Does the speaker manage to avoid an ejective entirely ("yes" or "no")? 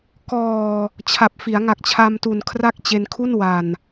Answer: yes